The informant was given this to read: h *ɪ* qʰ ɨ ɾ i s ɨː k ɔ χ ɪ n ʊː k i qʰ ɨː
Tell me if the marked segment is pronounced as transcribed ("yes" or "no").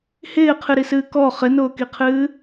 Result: no